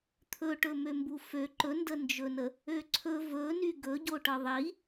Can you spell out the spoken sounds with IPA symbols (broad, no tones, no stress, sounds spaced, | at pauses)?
t̪ʰ ɵ ʈ ɵ m ø m b u f ø ǃ ɵ n d ə n d͡ʒ ɵ n ə | ø ǀʰ ɵ v ɵ n y ɡ ɵ ɟ o ʈ ɤ ðˤ i